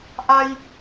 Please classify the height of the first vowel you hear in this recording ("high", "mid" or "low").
low